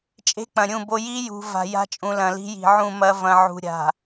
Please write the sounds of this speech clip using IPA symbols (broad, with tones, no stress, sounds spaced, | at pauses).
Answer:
t͡ʃʼ e̤˦ k͡p ɐ̃˨ ɾʲ ũ˦˨ b o˦ j i˦ j ṳ˨ v a̤˨ j a̤˦ t͡ʃʼ ũ˨ l ɐ̃˨ l i̤˦ j i̤˨ ʕ ũ˦˨ m ɐ˦ v ɐ̃˨ ʕ ṳ˨ ɾʲ a̤˨